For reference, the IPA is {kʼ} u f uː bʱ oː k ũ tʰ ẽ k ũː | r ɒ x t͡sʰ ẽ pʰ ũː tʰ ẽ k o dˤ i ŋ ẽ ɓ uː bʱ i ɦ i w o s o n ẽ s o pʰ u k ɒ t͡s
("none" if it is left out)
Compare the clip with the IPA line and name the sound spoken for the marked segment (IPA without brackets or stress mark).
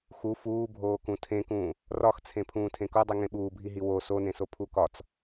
x